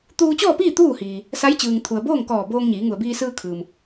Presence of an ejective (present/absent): absent